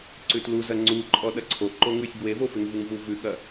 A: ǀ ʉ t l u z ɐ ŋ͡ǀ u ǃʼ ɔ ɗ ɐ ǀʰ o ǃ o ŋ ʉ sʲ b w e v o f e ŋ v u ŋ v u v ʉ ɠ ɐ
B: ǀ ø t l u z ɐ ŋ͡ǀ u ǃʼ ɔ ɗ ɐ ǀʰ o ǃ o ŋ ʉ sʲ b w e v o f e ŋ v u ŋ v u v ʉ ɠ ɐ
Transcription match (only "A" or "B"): A